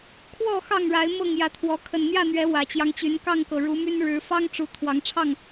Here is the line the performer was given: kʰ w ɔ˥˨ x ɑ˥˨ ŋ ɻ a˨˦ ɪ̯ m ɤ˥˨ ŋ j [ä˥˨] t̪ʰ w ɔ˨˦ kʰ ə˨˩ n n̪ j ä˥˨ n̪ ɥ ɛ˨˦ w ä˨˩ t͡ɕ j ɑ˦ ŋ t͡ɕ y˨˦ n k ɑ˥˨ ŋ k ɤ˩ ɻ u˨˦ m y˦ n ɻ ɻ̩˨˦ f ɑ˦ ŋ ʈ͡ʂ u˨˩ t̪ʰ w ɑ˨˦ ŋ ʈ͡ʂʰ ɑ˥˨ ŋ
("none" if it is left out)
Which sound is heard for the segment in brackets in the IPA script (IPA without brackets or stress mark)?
ä˨˦